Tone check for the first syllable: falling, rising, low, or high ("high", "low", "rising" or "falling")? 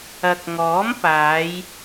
low